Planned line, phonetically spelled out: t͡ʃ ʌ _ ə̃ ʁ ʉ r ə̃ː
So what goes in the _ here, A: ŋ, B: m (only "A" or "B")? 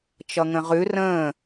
A